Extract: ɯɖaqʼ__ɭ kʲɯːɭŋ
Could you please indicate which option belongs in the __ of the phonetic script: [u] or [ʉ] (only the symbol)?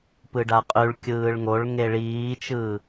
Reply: ʉ